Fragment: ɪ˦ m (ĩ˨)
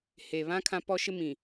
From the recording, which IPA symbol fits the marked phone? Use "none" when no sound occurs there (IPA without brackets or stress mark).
ĩ˨